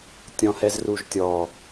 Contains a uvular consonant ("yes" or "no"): no